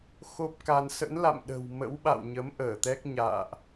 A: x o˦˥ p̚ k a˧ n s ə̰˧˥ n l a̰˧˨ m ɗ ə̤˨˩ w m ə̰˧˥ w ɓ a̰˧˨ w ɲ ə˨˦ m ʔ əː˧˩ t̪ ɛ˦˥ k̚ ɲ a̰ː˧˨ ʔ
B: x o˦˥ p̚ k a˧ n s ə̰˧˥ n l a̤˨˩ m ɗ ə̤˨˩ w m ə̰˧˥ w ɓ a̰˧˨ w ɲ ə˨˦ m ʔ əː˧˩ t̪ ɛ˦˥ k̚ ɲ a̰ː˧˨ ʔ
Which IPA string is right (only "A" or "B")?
A